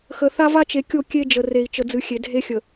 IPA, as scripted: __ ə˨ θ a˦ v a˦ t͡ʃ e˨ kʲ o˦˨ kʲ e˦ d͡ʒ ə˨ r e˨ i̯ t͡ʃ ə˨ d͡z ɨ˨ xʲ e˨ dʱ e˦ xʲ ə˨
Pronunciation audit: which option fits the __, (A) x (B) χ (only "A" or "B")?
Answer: A